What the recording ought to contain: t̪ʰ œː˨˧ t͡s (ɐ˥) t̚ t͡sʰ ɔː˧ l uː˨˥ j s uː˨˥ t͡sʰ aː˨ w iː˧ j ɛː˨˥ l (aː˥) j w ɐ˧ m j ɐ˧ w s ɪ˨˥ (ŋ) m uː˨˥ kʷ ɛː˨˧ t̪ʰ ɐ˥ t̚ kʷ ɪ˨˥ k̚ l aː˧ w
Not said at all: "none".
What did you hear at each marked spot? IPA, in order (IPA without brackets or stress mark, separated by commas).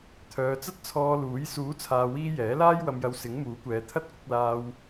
ɐ˥, aː˥, ŋ